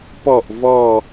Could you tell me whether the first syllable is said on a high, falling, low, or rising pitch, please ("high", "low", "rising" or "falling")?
falling